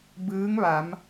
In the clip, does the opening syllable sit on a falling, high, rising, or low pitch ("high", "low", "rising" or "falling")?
rising